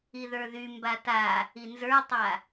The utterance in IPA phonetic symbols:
i ð ə˞ ð y m b a t a | i n z ə˞ tˤ a

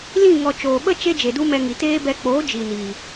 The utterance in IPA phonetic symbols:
l ĩ˦˨ ŋ ɔ˨ t͡ʃ oː˨ ɓ ə˦ t͡ʃ e˦ d͡ʒ e˨ d u˦ m ɛ˧ ŋ i˨ t eː˦ b ɛ˧ k͡p o˨˦ d͡ʒ i˨ n iː˨

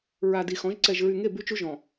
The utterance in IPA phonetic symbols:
ɹ a˨ d i˨ x ɔ̃˨˦ ʒ ǀ ɛ˨ ʒ ɹ y˨ ŋ e˦˨ b y˦ t͡ʃ u˦ ʒ ɔ̃˨

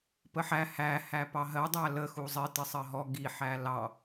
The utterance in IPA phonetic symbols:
p ə ħ æ h æ h æ p ɑ ɦ ɜ dˤ æ l ə x u zˤ ɪ t ɪ sˤ ɜ ɦ ɔ ɡ i ħ æ l ɑ

